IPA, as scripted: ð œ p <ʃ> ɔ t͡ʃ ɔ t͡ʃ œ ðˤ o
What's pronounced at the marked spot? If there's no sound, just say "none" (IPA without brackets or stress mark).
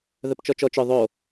t͡ʃ